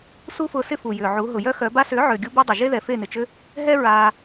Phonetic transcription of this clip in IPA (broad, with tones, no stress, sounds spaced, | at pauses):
s u˦ f ʊː˧ s ɪ˦ f u˨ j ʏː˨ ʕ u˨˦ ɦ ʊ˨ j œ˦ x œ˨˦ b a˧ s ʏː˨˦ ʕ ʏː˨ ɡʲ u˦ b o˦ dˤ ʏ˨ ʒ e˦ ð ɛ˨ f e˦˨ n ɪ˨ t͡ʃ ʏ˦ | ɦ ɛ˦ ɹ aː˧